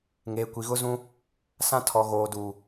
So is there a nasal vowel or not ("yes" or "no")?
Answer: yes